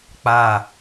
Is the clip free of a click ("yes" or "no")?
yes